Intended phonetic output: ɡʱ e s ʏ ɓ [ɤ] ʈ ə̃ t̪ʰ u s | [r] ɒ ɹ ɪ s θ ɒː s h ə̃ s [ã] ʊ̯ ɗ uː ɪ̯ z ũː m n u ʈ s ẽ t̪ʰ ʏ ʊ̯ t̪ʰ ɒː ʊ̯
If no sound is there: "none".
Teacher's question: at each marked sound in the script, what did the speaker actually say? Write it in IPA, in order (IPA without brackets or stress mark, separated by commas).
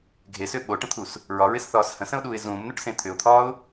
o, ɹ, ə̃